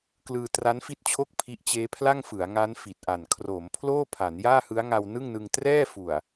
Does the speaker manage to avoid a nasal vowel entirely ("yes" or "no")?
yes